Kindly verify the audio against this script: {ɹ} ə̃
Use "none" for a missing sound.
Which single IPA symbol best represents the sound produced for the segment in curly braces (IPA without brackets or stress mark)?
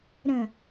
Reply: ɾ